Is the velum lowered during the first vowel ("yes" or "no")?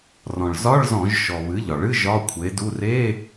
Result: yes